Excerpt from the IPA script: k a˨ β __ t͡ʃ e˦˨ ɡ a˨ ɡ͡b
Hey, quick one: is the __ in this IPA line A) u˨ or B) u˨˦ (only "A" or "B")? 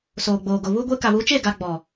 B